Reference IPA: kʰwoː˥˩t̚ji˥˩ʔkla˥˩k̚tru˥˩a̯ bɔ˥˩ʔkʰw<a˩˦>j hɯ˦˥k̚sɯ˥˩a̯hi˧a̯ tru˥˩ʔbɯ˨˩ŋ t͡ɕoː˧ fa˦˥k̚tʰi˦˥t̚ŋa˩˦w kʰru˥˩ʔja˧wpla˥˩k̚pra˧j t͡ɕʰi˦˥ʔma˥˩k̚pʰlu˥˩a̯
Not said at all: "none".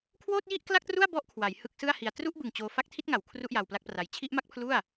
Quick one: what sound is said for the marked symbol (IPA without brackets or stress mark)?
a˩˦